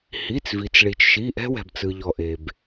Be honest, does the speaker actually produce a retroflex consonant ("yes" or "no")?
yes